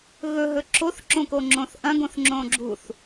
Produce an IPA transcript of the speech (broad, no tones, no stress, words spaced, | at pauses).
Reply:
ɣɵɦɵ ǁʰoθǁõko ŋ͡ǁõθʔɐ̃ɡõθ ŋ͡ǁõɡ͡ǁuθ